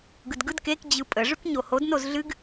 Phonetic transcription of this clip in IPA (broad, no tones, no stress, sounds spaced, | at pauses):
ɡ ɯ d ɡ ɯ d k e k d͡ʑ ɯ pʼ ə ʐ ʉ k ɲ o h o d n o z ɮ ɨ ɡ